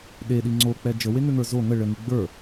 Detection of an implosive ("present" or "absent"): present